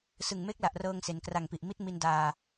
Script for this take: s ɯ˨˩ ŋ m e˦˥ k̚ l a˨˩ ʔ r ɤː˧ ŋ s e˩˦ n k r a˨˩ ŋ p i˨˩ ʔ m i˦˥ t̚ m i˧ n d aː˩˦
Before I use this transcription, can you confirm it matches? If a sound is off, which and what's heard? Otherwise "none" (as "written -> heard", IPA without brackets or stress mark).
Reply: aː˩˦ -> aː˧